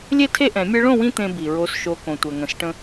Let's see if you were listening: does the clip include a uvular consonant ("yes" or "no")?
no